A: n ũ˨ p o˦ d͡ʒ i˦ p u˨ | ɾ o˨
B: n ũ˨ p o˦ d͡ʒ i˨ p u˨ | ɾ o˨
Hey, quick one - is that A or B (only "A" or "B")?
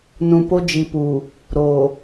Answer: B